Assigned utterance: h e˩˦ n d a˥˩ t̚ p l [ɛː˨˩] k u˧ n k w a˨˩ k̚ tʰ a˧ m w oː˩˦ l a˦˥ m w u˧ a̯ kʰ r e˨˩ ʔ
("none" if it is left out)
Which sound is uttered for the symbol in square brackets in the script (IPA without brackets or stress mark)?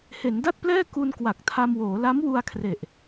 ɛː˥˩